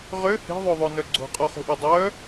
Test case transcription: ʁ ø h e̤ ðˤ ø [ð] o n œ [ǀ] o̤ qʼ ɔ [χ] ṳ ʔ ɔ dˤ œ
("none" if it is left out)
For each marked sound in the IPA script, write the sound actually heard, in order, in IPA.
ðˤ, ɡ͡ǀ, χ

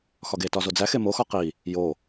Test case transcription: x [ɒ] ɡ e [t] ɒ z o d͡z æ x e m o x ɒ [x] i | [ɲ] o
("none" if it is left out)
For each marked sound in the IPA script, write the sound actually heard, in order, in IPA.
ɒ, t, q, j

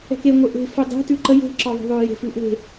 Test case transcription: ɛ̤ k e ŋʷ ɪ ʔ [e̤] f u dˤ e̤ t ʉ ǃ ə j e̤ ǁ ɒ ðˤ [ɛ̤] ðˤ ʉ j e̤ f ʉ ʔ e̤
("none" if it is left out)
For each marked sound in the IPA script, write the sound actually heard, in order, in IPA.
e̤, ɛ̤

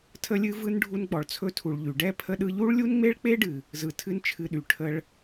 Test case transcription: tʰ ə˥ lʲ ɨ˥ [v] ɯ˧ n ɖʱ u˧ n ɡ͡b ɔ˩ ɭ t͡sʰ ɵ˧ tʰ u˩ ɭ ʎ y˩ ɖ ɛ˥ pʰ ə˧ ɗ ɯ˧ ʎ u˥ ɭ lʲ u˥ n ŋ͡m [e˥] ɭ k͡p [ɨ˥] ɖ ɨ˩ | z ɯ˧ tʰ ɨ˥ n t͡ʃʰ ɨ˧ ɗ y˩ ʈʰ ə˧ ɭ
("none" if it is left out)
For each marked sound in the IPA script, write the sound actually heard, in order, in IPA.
v, e˥, e˥

